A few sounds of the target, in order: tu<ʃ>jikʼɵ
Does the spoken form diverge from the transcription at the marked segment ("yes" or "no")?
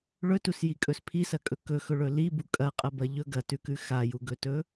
yes